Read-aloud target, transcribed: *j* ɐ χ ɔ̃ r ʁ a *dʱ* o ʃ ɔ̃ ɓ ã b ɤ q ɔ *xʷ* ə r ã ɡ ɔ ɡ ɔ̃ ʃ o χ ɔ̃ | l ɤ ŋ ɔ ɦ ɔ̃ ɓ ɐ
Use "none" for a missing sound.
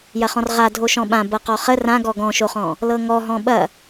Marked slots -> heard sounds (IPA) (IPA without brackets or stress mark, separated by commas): j, dʱ, χ